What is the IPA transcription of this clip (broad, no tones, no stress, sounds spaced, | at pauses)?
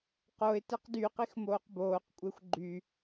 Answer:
q o ɪ̯ t e q d y q i x m oː q b oː q kʷʼ e xʷ ɡ͡ǃ y